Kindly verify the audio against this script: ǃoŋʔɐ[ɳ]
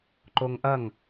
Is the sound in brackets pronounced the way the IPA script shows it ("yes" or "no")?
no